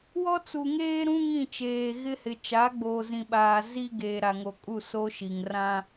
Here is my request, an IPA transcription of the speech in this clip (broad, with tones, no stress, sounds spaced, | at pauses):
w ɔ˦ t͡s u˨ ŋ eː˦ ɾ ũ˦ ŋ ĩ˦˨ t͡ʃ eː˨ ɣ ɪ˦ h ɪ˨ t͡ʃ a˨˦ ɡ͡b oː˨ z ĩ˨ ɓ aː˨ z i˦ ɡ eː˨ ɾ a˨ ŋ o˨ kʼ u˦˨ s o˦ ʃ i˨ ŋ r ã˦